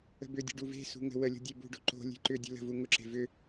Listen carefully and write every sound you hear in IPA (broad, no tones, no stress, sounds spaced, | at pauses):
ə̤ b ʏ dʲ ə̤ ɖ u v e̤ s ṳ ŋ ə̤ w ə lʲ o̤ dʲ e b ṳ ɖ o̤ ǃ o̤ lʲ e̤ ǃ ʏ dʲ ə̤ l ə̤ v u ŋ ʊ ǁ e̤ v ʏ